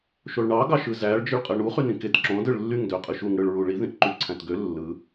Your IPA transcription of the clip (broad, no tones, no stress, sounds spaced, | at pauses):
ʃ o ɭ ɳ ɑ ɡ ɑ ʃ ɯ z æ ɭ d͡ʒ ɯ ɭ qʼ ɯ ɳ u χ y n ĩ k e t ǁ õ d ɯ ɭ lː y ŋ d ø qʼ ɯ ʃ u ŋ ɽ ɯ ɭ ɹ u ɭ i ð ĩ ʔ ǃ y ǀʰ æ̃ t ɡ ø lː ɯ